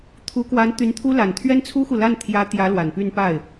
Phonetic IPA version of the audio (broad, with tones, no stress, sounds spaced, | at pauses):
t̪ʰ u˧˥ k w a˧˥ n t̪ y˧˥ n t̪ʰ u˥ l a˨˩ n t̪ʰ ɥ ɛ˥ n t͡sʰ u˥ x u˨ l a˥˩ n t̪ʰ j ä˧˥ t̪ j ä˧˥ l w a˨˩ n p y˥˧ n p a˥˩ ɪ̯